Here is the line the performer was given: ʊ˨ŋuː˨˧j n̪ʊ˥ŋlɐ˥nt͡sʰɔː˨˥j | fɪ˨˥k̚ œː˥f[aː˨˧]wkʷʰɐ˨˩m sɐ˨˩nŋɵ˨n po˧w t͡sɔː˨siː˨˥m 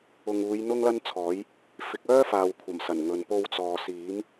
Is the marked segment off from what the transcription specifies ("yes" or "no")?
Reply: yes